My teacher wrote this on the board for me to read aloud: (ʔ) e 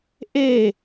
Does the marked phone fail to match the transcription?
no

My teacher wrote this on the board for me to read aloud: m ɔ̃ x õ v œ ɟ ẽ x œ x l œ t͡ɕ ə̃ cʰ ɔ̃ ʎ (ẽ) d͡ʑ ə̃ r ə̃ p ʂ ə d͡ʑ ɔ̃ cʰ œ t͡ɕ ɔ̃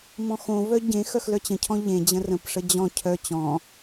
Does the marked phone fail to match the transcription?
no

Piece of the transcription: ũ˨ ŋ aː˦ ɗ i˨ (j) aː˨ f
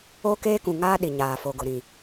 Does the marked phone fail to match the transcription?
yes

